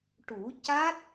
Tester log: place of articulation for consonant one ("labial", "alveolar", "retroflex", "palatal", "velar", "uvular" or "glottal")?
retroflex